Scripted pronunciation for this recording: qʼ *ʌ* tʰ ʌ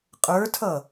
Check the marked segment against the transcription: incorrect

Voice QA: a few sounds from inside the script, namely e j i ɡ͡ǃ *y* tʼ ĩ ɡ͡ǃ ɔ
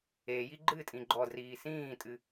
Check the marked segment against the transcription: incorrect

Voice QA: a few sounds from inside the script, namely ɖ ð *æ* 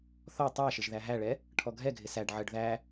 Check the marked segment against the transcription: correct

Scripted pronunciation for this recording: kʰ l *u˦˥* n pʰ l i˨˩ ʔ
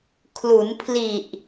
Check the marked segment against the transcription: incorrect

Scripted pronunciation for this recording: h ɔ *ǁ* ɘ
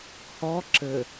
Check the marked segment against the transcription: correct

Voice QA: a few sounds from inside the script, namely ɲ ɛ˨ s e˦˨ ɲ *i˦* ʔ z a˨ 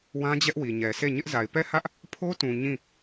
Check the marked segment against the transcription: incorrect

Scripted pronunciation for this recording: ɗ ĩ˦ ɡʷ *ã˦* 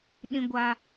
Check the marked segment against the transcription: incorrect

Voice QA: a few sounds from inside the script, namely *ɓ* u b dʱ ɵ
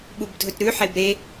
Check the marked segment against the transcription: correct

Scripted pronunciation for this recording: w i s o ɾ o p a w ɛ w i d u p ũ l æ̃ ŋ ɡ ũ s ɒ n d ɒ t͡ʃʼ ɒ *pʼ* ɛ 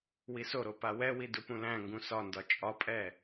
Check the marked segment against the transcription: correct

